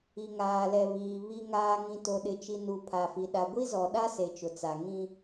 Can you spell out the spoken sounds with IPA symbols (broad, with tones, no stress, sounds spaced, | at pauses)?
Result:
i˨ ŋ aː˨ l ɛ˨ β iː˨ β i˨ ŋ aː˨ ŋ ĩ˨ t o˨ ɗ ɪ˨ t͡ʃ i˨ n u˨ pʰ a˨ f i˨ ɗ a˨ ɡʷ i˦ z ɔ˨ ɗ a˦ s e˨ t͡ʃ ʊ˨ t͡s a˨ ŋ ĩ˦